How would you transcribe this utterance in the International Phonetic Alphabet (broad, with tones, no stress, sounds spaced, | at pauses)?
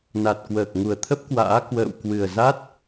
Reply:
n a˨˩ t̚ k w əː˨˩ k̚ ŋ u˨˩ ə̯ t̪ʰ ə˦˥ p̚ k w a̰ː˧˥ k w ə̰ː˧˨ w k w ɨ˨˩ ə̯ z a˦˥ t̚